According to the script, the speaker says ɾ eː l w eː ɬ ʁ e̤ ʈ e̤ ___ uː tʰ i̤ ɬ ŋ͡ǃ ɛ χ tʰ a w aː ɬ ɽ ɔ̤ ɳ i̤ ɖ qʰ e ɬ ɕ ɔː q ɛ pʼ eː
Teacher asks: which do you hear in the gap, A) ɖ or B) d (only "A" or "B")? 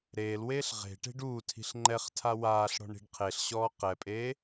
A